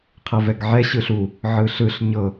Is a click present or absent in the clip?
absent